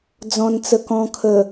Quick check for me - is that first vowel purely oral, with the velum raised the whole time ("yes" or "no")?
no